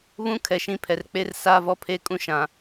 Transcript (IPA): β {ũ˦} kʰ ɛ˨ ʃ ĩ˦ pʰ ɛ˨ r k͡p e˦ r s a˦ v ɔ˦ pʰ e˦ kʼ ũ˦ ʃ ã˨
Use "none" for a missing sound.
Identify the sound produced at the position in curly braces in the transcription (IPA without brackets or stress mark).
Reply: ũ˦